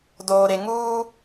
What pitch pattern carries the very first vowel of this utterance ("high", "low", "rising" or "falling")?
low